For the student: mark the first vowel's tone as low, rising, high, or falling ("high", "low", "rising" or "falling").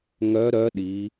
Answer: rising